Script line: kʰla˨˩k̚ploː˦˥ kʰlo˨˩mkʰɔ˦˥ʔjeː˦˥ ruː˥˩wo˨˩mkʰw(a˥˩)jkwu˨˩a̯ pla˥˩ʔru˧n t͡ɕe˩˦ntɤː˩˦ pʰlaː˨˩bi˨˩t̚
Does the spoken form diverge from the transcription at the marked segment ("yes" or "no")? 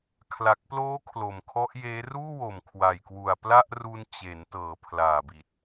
yes